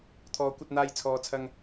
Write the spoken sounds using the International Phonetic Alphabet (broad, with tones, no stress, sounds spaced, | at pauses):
t̪ʰ ɔː˨˧ kʷ ɐ˧ t̚ n̪ aː˧ j t͡sʰ ɔː˨ t͡sʰ ɐ˧ ŋ